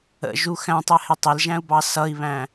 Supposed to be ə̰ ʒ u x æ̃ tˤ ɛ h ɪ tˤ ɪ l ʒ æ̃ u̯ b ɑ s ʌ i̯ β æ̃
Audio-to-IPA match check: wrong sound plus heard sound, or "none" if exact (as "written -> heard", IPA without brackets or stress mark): none